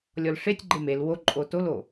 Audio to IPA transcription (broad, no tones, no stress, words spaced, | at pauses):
lʲɔlʂetʲɡ͡ǃe mel woǃʼo tolo